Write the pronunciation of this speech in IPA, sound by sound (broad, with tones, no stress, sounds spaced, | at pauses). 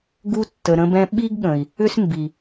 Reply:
ɡ u˧ tː ə˨ ɾ ə̃˧ b ɛ̃˧ ɓ i˦ ɡ ɠ ə̃˨ i̯ | ʏ˦ s m b i˨